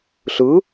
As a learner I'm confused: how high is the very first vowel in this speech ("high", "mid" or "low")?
high